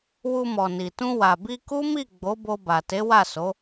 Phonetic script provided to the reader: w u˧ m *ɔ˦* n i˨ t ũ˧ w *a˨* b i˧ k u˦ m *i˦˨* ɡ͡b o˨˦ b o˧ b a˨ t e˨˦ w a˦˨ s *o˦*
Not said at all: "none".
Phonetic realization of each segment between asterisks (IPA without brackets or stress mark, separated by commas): ɔ˨, a˨, i˦˨, o˨˦